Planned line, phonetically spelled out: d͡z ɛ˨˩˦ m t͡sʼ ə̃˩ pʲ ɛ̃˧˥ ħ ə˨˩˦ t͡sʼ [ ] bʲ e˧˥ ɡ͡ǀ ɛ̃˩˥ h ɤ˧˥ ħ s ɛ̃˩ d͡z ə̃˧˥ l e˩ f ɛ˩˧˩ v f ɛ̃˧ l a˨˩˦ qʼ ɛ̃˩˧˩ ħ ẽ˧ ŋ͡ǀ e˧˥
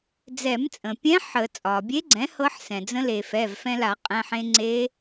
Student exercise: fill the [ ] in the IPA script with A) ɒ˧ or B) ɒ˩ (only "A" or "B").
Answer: B